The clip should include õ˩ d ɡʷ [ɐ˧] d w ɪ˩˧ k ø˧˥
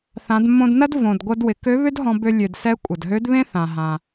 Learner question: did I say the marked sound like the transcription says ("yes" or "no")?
yes